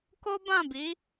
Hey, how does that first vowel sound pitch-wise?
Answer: high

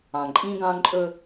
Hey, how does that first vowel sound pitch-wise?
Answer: low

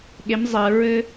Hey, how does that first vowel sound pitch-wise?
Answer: rising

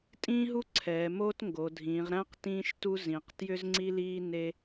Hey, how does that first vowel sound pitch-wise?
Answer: high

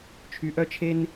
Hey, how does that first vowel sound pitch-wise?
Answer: low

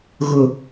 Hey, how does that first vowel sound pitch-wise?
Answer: low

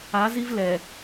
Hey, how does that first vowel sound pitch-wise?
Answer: rising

